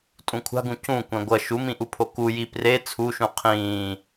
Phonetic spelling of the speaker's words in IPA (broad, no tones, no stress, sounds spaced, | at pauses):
tʼ ũ kʷʰ a̤ ɡ ũ c ũ kʷ ɛ̃ ɡʷ ʌ ʃ u m ĩ ʔ u pʰ o k u j i p r e t͡sʰ u ʃ ũ qʰ ĩː